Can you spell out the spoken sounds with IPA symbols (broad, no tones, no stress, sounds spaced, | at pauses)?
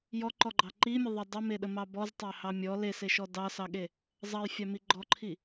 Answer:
j ɔ ǃ ɔ ɡ͡ǃ ɑ ǃ i mʲ ə ðˤ ə dˤ ə m e ɗ ə m ɑ b ɔ z tˤ ɑ h ɑ mʲ ɔ l e s e ʃ ɔ d ɑ s ɑ ɠ e | zˤ ɑ j fʲ ɑ m i ɡ͡ǃ ɔ ǃʰ i